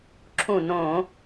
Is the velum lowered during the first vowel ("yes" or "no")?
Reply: yes